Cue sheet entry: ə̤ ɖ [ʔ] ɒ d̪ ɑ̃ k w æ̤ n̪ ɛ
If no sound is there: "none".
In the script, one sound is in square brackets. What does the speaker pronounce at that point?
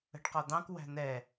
q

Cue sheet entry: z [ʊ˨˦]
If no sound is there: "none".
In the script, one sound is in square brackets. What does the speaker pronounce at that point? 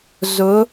ʊ˨˦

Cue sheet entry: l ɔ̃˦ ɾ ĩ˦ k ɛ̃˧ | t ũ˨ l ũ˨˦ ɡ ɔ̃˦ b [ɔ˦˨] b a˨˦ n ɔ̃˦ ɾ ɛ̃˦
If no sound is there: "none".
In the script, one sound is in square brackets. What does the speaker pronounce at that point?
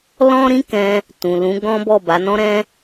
ɔ˦˨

